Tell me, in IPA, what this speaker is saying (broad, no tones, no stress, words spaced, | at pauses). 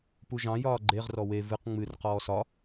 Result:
puʒɑ̃ jɒːɡ͡ǃeʁ rɔwe vɨq ŋ͡mɨr qɔːsɒ